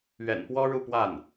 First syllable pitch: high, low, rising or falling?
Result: low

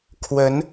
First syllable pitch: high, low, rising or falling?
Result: rising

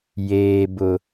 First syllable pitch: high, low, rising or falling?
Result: high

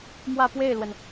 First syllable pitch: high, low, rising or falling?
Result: falling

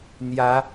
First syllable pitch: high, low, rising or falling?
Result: rising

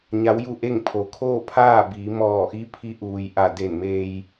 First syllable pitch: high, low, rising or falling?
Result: rising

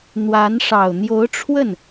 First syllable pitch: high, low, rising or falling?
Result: rising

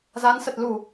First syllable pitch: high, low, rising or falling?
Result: rising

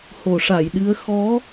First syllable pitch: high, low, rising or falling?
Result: low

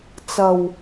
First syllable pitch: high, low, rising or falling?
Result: low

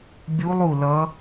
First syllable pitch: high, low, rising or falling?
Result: rising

